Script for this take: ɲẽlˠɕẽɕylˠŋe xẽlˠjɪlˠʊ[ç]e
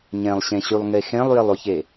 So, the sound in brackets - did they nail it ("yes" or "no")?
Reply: yes